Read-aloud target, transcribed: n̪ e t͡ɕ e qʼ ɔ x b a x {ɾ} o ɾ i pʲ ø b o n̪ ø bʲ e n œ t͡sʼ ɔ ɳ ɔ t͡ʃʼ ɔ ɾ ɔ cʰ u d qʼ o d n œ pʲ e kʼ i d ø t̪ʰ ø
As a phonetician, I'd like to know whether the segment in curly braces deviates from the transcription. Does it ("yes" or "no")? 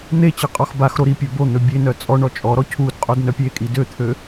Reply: no